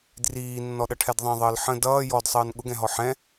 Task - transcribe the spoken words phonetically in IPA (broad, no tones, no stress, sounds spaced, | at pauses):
d r iː nː ɔ ɗ ʌ ʈʰ ɛ d ðˤ ɛ̃ ðˤ əː l ħ ə̃ d ʌː j ɔ d sˤ əː n ɠ ʊ ɡ ɛ̃ ɦ ɔ ħ ɛ̃